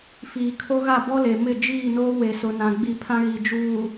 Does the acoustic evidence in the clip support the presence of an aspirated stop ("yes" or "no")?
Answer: yes